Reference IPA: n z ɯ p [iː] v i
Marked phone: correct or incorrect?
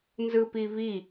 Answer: incorrect